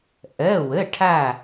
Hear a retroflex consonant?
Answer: yes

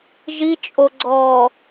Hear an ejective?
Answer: yes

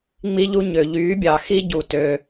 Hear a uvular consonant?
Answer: no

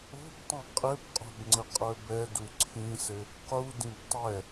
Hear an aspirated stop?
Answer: yes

